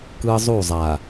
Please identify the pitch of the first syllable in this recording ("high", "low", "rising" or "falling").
high